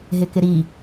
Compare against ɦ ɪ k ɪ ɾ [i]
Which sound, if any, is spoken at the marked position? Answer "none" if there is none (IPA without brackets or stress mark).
i